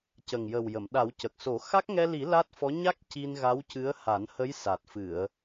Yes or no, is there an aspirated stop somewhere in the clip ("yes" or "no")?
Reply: no